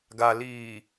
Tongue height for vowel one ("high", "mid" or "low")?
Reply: low